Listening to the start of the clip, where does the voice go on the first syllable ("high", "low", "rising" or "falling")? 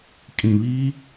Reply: low